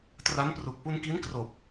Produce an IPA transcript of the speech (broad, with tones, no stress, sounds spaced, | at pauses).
t r a˦˥ n p r u˨˩ k̚ p u˧ n k i˦˥ n k r oː˨˩ p̚